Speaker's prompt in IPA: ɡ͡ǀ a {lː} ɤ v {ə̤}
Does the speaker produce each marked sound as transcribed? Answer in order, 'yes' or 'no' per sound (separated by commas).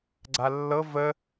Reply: yes, no